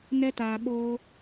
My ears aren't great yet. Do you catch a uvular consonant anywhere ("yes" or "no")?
no